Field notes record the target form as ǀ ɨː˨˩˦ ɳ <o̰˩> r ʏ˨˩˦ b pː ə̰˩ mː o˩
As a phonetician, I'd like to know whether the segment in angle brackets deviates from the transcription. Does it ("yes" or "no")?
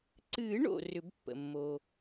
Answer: no